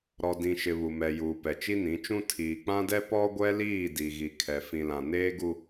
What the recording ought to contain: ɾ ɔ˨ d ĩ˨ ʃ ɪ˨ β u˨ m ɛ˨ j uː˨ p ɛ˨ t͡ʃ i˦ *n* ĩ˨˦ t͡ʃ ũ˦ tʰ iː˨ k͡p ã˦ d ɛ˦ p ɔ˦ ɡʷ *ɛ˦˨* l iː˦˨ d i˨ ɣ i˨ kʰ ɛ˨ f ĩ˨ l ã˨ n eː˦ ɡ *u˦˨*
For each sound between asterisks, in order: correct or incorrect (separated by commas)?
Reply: correct, incorrect, incorrect